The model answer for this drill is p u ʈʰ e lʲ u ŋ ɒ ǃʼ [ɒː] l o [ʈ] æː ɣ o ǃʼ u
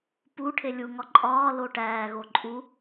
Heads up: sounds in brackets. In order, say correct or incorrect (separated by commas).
correct, correct